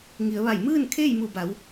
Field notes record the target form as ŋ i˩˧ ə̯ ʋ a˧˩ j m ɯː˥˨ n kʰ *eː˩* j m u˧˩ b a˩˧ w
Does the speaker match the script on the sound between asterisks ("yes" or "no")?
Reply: no